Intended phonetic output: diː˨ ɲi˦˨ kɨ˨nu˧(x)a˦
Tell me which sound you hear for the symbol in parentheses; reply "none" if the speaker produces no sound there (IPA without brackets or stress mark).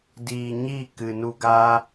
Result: ɡ